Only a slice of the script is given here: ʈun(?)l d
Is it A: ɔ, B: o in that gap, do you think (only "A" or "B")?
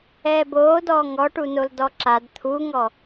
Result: B